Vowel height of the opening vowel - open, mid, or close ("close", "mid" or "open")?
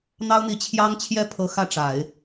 open